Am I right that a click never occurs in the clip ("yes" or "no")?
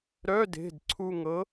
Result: no